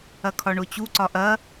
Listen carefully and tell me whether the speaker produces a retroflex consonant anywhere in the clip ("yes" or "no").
yes